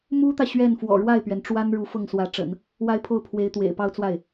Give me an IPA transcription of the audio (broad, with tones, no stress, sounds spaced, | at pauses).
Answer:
m u˥ t̪ ä˨ ɕ ɥ ɛ˥˩ n f w ɔ̰˨˩ ɻ w a˥˩ ɪ̯ p ɥ ɛ˩ n ʈ͡ʂ w a˥ n ɻ u˧˥ f ɤ˥˩ ŋ s w ä˧˥ ʈ͡ʂ ə̰˨˩˦ n | w a˥ ɪ̯ pʰ o˥˩ ʊ̯ pʰ w e˧˥ ɪ̯ t̪ w ḛ˨˩ ɪ̯ p ɑ˥˧ ʊ̯ t͡s w a˥˩ ɪ̯